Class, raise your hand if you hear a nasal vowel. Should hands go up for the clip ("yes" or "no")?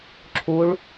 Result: no